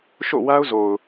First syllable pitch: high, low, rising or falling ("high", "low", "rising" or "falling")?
falling